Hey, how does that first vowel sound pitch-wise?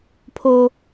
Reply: high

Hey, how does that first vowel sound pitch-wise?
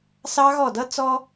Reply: high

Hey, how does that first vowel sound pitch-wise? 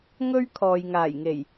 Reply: high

